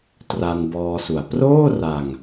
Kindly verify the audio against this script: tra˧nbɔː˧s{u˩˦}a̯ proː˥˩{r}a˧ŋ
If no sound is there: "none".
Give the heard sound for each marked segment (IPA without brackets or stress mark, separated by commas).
u˩˦, r